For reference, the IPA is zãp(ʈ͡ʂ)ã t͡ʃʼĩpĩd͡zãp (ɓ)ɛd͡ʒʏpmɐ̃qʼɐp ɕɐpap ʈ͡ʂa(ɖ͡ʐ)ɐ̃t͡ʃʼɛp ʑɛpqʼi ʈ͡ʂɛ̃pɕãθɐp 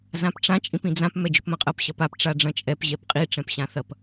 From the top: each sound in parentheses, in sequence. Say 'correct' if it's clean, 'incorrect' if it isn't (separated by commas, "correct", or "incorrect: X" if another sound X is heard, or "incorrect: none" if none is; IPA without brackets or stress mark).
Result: correct, incorrect: m, correct